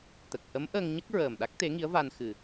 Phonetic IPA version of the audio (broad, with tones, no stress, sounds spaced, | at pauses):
t̪ ə˨˩ k̚ h ə˧˥ m ʔ əː˧ ŋ ɲ ə˦˥ k̚ ɹ əː˨˩ m ɗ a˦˥ k̚ t̪ e˧˥ ŋ i˧˥ ə̯ v a˧ n x ɨ˨˩